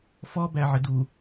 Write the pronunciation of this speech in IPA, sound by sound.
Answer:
fɔbæ ʕɪdu

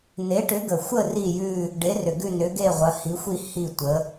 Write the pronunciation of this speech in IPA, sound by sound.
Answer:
ne˨˥ʈʏ˨˥ɡə˨˩xʷə˥˧ ri˥˧jʉ˥˧ | ɖe˨˥rʏ˨˩ ɡʉ˥˧nʏ˨˥ɡe˥˧ʁʷɐ˨˥ hi˨˥xʷi˥˧ hi˥˧tʷə˨˥

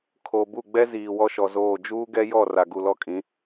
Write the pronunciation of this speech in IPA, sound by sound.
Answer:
kʰo˨bu˦˨ɡ͡bɛ˦ ziː˨wɔ˦ʃɔ˨zoː˦˨ d͡ʒuː˦ɡɛ˦jɔ˦˨ ra˨ɡu˨lɔ˦˨kʼĩ˨˦

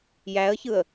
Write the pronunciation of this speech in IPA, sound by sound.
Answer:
jæə̯çɯə̯

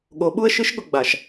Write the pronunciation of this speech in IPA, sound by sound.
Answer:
ɠo˨˦ɓu˦ə̯ʃɨ˦ʃ ɠʊ˨ɡ͡ba˨ʃ

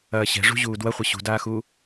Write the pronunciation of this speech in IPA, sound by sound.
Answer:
ɐːɕɛ̤ʐṳ ʑuːdwɐχʷɐ ɕṳdaːxuː

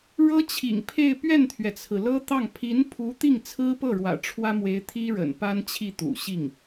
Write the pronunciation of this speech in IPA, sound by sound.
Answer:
ɻɤ˥t͡ɕʰḭ˨˩ŋpʰe˥˧ɪ̯ pɥɛ˥˩nt̪ʰɥɛ˩t͡sʰɹ̩˩ lɤ˥t̪ɑ˥˩ŋ pʰi˧˥npʰu˧˥ t̪i˥˩ŋt͡sʰɹ̩˥pɤ˥˩ɻwä̰˨˩ ʈ͡ʂʰwä˥mwe˧˥ɪ̯ t̪ʰi˥ɻə̰˨˩n pa˥nt͡ɕʰi˥˩ t̪ṵ˨˩ɕi˥˩ŋ

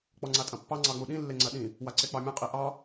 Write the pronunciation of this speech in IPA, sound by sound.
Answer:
k͡pɔŋ͡ǀatʼɐ̃pːɑ ŋ͡ǀɑŋ͡muɗĩ lːeŋ͡ǀɐɗĩ | waǀek͡pɑmʲɐ̃ qʼiʔɑ

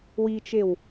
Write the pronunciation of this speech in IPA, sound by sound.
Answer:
wit͡ʃew

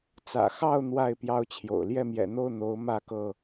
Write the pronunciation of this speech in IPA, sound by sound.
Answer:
t͡sä̰˨˩xɑ˥˨ʊ̯ n̪wa˥˨ɪ̯ pjɑ˦ʊ̯t͡ɕʰjo̰˨˩ʊ̯ ljɛ˥˨mjɛ̰˨˩n̪o˥˨ʊ̯ n̪o˨˦ʊ̯ mä˥˨kɤ˥˨

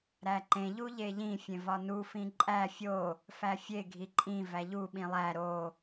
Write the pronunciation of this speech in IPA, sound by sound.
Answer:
ɾæǃẽ ʎuʎeʎĩ fʲẽvɒnu fĩǃʼæ fʲo | fæfʲe ɡʱiǃʼĩ væʎu ɓĩlˠæ ɾo

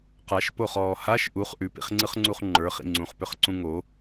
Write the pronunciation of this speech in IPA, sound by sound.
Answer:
qaʃpoχɔː haʃ ʔuχ ʔʉpḭχŋ͡ǀɯχŋ͡ǀuχ ŋ͡ǃə˞χḭ ŋ͡ǀũχpʏχǀũ ŋo

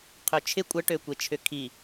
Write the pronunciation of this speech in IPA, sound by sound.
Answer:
qʰøt͡ʃʰɪ kʷʼə ʈøkʷet͡ʃʰʏkʰi

